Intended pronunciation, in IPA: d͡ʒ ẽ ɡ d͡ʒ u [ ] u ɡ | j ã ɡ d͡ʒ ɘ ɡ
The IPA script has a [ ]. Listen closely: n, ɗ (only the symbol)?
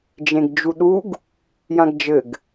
ɗ